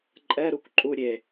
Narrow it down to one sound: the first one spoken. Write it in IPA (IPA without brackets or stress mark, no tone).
ǃʼ